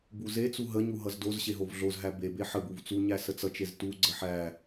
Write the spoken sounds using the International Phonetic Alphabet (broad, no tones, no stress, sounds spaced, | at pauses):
b u z e t͡s u ɦ ə ɲ u ɦ ʌ z d o z ɕ e ɦ o v ɮ o z ɦ æ b e b e ħ ə b u v t͡s u ɲ æ s ə t͡s ʌ t͡ʃ e z t u ɡ͡ǀ ə ħ æ